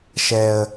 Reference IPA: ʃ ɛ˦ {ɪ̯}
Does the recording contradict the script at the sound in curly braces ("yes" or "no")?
yes